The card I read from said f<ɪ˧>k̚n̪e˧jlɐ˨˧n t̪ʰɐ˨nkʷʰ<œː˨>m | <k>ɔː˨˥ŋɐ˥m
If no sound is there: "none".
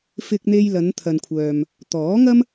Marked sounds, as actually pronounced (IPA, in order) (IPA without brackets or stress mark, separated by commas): ɪ˧, œː˨, t̪